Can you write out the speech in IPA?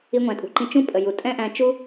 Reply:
i˧ ŋʷ æ̃˨ tʼ ṳ˨ ǃ ĩ˧ t͡ʃ ũ˦ pʼ ə˨ j u˨ tʼ ɛ̃˦ ʔ æ̃˧ t͡ʃ u˦

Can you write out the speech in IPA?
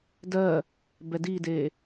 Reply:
d ɜ | b ɛ d iː d eː

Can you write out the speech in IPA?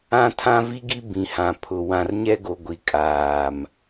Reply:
ã˦ tʰ ã˦ v i˦ ɡ i˦ b ĩ˨ h ã˨ pʰ ʊ˨ w ã˨ r ɲ ɛ˦ ɡ o˨ ɡʷ i˨ kʼ aː˨ m

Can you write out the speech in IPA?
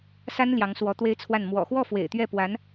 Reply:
s a˥ n l j ɑ˧˥ ŋ s w ɔ˧˥ t̪ w e˥ ɪ̯ t͡sʰ w a˥˩ n m w ɔ̰˨˩ x w ɔ˥˩ f w ḛ˨˩ ɪ̯ t̪ ɥ ɛ˥˩ p w a˧˥ n

